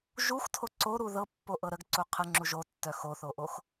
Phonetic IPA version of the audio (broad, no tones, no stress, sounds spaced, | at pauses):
ʒ u x tʰ o ǀ o ɾ u ð ɤ pː o ʔ ɤ ɾ ə ɡ ǀ u qʰ ə ŋ͡ǁ u ʒ o tː œ x o θ o ʔ o x